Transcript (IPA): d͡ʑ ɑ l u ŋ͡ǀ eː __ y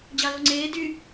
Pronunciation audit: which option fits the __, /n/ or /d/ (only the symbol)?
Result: d